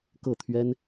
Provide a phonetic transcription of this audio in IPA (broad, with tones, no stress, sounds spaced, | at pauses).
k ɤ˥˩ t̪ʰ ɥ ɛ˥ n